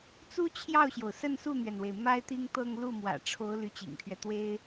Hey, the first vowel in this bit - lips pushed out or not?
yes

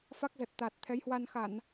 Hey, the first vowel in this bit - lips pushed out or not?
no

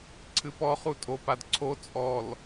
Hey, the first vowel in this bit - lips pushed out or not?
no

